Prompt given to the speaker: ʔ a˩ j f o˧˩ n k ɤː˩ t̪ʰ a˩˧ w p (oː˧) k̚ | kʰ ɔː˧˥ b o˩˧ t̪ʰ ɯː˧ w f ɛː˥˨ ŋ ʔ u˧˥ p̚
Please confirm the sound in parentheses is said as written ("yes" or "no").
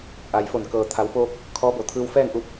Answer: yes